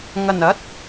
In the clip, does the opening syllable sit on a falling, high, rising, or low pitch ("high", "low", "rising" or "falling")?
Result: low